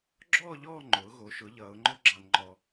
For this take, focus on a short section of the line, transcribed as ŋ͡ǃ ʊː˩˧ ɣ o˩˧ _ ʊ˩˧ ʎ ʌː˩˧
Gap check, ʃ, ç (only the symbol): ʃ